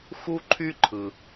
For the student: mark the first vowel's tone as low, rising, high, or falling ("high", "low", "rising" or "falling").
high